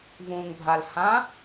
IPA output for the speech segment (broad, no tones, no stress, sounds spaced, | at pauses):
v ũ ŋ bʱ a l h ã